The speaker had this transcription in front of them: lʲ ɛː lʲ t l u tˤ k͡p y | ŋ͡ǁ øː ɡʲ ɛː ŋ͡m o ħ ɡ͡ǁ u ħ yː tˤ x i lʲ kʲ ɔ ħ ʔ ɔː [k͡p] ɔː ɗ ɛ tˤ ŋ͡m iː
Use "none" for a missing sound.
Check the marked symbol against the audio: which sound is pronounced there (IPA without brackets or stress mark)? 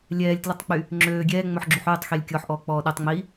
k͡p